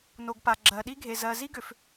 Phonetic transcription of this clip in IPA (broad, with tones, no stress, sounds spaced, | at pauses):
n o˨ ɡ p a˨ ɡ͡ǁ ɜ˨ ɗ i˦ ɡʱ e˨ z ɜ˨ z i˦ ɡ ʏ˨ f